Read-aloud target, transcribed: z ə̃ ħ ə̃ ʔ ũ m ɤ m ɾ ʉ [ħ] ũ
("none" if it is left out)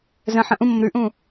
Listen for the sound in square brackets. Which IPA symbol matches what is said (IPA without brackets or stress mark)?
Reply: ʔ